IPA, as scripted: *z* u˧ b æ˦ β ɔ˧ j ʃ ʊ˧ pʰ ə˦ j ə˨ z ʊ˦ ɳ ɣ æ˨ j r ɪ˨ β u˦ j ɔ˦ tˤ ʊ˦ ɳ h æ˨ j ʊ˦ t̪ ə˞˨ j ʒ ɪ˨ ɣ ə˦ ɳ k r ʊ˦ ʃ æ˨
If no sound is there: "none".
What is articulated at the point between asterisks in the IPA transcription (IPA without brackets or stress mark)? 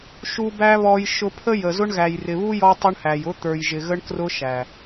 ʃ